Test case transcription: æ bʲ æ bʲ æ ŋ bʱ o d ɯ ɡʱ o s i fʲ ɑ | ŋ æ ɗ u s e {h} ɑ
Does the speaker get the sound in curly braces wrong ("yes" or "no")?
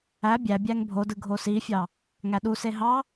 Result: yes